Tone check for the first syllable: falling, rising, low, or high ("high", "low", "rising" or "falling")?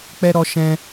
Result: high